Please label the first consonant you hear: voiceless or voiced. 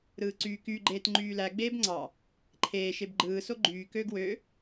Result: voiced